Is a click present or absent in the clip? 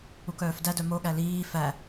absent